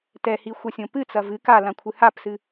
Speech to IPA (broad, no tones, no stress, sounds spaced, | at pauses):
t ɛ h i xʷ ɐ sʲ õ p ɨ t͡s ɐ v ɨ k a l ã kʷʰ ɨ h a p s ɨ